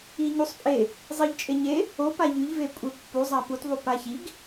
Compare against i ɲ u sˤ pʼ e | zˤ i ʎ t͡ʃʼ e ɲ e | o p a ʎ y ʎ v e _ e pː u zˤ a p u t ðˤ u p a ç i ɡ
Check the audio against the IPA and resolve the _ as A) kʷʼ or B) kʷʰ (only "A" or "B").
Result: A